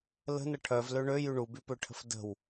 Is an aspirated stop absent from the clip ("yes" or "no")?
no